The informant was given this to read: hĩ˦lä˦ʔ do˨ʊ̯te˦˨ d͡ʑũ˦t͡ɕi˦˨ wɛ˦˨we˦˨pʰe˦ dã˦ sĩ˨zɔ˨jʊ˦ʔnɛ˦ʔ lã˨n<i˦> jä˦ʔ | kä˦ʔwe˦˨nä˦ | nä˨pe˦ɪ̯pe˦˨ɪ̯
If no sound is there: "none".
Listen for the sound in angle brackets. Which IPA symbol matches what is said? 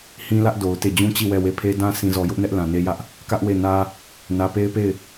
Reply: e˦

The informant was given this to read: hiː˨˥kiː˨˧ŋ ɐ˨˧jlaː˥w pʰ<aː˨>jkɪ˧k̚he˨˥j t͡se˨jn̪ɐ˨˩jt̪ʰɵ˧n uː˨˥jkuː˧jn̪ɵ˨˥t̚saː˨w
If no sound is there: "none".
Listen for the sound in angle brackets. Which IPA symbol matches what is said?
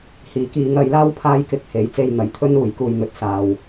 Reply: aː˥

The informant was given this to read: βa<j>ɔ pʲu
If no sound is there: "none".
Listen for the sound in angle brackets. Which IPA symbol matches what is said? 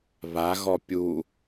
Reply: ɣ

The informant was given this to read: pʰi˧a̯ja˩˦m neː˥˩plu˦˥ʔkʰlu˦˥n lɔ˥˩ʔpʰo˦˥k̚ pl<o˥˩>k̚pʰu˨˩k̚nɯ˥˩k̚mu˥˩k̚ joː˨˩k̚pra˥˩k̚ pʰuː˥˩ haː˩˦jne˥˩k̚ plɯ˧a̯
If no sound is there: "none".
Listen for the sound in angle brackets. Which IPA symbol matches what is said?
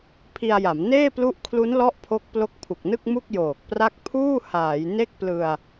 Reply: o˦˥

